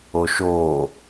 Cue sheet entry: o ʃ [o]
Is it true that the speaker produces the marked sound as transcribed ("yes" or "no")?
yes